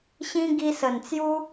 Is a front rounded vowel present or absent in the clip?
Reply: absent